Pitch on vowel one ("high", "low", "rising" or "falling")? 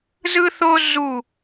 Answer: high